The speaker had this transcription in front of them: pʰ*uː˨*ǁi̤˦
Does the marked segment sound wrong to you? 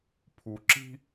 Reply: yes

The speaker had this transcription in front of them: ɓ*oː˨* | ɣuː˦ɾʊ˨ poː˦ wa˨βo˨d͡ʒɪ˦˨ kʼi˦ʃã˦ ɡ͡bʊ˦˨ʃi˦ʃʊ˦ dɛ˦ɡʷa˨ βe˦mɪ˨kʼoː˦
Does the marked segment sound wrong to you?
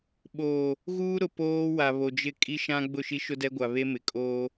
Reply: no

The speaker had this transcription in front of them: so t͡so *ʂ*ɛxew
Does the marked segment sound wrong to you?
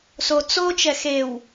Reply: yes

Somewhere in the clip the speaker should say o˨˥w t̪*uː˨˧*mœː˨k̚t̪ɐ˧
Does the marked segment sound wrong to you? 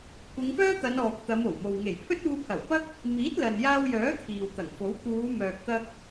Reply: no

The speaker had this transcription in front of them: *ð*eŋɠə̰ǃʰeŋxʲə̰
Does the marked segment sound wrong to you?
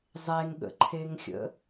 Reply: yes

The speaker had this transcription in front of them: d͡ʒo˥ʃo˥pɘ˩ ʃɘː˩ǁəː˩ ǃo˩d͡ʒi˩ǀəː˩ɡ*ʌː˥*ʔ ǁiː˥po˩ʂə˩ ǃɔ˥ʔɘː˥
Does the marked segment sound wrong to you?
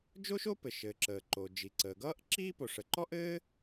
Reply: no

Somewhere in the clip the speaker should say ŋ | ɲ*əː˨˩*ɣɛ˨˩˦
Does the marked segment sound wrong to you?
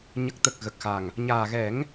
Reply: yes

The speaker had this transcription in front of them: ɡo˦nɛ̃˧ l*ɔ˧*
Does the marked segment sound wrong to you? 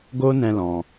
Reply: yes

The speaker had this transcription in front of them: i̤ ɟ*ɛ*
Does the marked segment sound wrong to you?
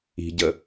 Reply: yes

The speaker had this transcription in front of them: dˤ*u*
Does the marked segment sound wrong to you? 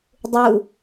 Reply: no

